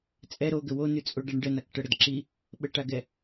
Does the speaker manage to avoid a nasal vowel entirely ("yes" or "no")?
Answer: yes